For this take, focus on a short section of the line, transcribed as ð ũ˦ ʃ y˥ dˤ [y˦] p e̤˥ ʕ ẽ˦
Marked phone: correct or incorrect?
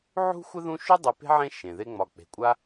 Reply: incorrect